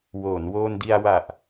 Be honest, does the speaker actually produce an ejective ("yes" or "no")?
no